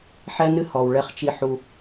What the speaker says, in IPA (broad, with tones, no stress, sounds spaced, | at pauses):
ħ ɛ˦ n ɨ˦ h ɔ˨ w ɭ ɛ˦ χ t͡ʃ i˦ ħ u˦